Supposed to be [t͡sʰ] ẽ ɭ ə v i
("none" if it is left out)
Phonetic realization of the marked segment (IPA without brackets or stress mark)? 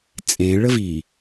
t͡sʼ